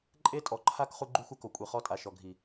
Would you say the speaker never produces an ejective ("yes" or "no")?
no